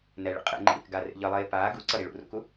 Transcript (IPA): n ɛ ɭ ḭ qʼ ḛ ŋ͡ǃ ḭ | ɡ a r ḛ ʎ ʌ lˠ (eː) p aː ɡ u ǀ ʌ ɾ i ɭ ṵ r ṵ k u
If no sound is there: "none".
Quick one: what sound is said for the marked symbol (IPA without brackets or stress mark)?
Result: eː